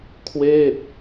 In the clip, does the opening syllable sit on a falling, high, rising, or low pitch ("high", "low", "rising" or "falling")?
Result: falling